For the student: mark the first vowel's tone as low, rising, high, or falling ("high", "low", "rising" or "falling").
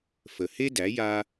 low